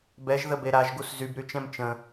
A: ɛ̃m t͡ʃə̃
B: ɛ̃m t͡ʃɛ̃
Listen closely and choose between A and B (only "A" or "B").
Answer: A